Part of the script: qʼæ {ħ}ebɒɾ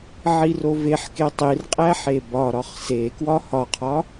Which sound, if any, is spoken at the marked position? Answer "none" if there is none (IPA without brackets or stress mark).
ħ